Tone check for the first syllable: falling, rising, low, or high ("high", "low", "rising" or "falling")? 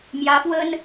rising